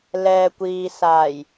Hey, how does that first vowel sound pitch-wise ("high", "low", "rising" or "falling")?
low